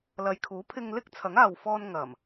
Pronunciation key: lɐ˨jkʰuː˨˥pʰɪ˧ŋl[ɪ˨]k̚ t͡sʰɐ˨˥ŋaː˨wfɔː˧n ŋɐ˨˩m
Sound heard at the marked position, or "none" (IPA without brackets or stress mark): ɪ˥